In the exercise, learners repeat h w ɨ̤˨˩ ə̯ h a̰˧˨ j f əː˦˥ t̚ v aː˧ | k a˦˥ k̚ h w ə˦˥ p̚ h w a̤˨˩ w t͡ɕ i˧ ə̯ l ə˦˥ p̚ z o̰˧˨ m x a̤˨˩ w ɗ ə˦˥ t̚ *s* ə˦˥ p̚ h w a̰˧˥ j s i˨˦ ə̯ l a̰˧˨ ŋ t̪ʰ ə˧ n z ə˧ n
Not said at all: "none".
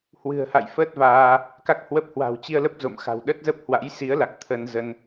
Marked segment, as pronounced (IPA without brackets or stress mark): z